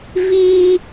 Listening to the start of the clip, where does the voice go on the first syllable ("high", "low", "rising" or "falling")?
high